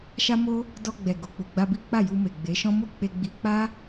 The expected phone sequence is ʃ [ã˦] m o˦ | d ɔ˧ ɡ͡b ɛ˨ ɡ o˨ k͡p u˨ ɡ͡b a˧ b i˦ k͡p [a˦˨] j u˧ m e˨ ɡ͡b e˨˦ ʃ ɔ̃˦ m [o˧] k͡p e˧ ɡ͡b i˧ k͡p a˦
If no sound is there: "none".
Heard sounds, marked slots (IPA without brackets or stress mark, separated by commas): a˦, a˦˨, o˦˨